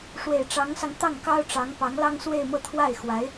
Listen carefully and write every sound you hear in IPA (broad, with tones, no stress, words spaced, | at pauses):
ʂwe˨˩ɪ̯ʈ͡ʂɑ˧˥ŋsɑ˧ŋ t̪ɑ˥˩ŋkɑ˥ʊ̯ʈ͡ʂɑ˧˥ŋpɑ˧˥ŋ lɑ˥ŋswe˥˧ɪ̯mɤ˥˧ t̪ʰwa˥˩ɪ̯xwa˧˥ɪ̯